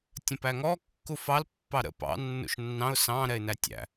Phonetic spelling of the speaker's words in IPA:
tʲ ə̃ p æ ŋ ɔ kː u f ɑ l pː ɑ ɾ ə̰ p ɑ̰ nː ṵ ʃ nː ɑ̃ ʊ̯ s ɑ̃ ɾ ɛ ɪ̯ n æ tʲ æ̰

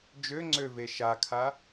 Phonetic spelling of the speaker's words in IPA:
d͡ʒ ø ŋ͡ǀ ø v e ʃ a kʰ a

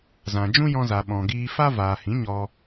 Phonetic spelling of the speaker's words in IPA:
z ã˨ d͡ʒ ũ˦ j ɔ̃˧ z a˨ ɓ ɔ̃˨ ɡ iː˧ f a˦ v aː˨ h ĩ˨˦ ɲ ɔ˧

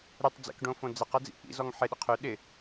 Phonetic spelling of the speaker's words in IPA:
ɾ ʏ tˤ d͡z ḛ k ɖ õ f õ d͡z ɛ q ɐ d͡z ḭ ʔ ḭ z ɔ ŋ ħ ɪ ɗ ɪ qʰ ʏ ɗ ɪ

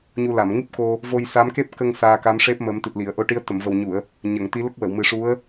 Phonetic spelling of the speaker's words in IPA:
ɲ u˧ l a˨˩˨ m ŋ ɨ˦˥ p̚ k o˧ | v o˧ j s a˧˥ m k e˦˥ p̚ k ə˧ ŋ s aː˧ k a˧˥ m ʂ e˦˥ p̚ m ə˨˩˦ m t̪ ɨ˨˩ t̚ l i˨˩˨ ə̯ ʔ o˧ ʈ i˧˥ ə̯ t̪ ə˨˩˨ m v ə˨˩ w ɲ u˨˩˨ ə̯ | ɲ ə˨˩˨ ŋ t̪ i˧˥ l ə˦˥ k̚ w ə˨˩˨ w m ɨ˨˩˦ ʂ u˧˥ ə̯

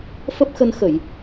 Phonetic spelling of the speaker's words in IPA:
f ə˦˥ p̚ x ə˧ n x ə˧˩˨ j

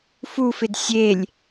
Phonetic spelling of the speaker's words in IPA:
f u f ɪ d sʲ e lʲ

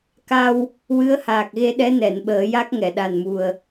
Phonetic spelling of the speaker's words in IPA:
k a˧ w | w ɨ˧˥ ə̯ h aː˨˩ k̚ ɣ e˧ ɗ ɛ˧˥ n ɛ˨˩˨ n ɓ əː˨˩˦ j a˦˥ k̚ ŋ ɛ˨˩˨ ɗ a˨˩ n m u˨˩ ə̯

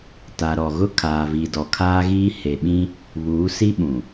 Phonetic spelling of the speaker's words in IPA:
t a˨ ɾ ɔ˨ ɣ ʊ˦ kʰ aː˨ v i˨ d ɔ˨ kʰ aː˦ ɣ iː˦ h e˨ ɓ ĩ˦ | β uː˨˦ s i˦ ɓ ũ˨

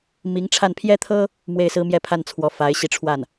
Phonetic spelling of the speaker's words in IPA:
m i˧˥ ŋ ʈ͡ʂʰ a˥˩ n pʰ j ɛ˥ t̪ʰ ɤ˥ | m w e˥˩ ɪ̯ s ɹ̩˥ m j ɛ˥˧ pʰ a˥˩ n t͡sʰ w ɔ˧˥ f a˧˥ ɪ̯ ɕ i˧˥ ʈ͡ʂʰ w a˥˩ n

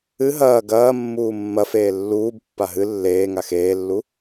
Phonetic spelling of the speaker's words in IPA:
ɨ ɦ ɐː ɡ ɐː mː uː mː ɐ f eː lː uː b pː a ɦ ɨ lː eː ŋ a x eː lː u

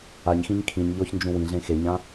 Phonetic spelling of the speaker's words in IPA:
a ɲ x ĩ ɲ kʰ ĩ ɲ ʎ ɔ ç n d͡ʒ ũ w ĩ ɮ ẽ x e ɲ ã

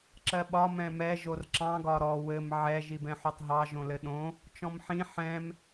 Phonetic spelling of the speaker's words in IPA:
ǁ ɜ ɓ ɒ m ɛ̃ m ɛ ʒ o r ǁ ɑ̃ ɡ ɒ ɾ ɔ w ɘ m ʕ ɛ ʒ i b ɛ̃ ħ o tˤ ɦ ɑ ʒ õ l ɘ ɗ õ | t͡ʃ ɔ̃ m ħ ĩ ħ ɛ̃ m

